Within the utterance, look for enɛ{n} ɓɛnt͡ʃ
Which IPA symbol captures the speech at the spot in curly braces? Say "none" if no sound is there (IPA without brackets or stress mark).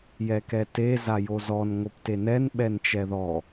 n